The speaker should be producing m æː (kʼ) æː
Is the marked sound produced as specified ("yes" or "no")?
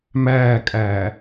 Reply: yes